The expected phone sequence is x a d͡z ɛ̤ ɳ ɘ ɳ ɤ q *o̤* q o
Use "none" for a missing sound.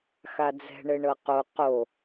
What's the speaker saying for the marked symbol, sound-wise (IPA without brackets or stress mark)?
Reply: o